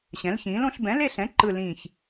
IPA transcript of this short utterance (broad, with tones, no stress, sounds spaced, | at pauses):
ɕ ɛ̃˩˥ l ç ĩː˩˥ l õ˩˥ ɬ b ɛ̃˩˥ l e˦˨ ɬ ɛ̃˩˥ ǃ ɯ˦˨ l ĩː˦˨ ç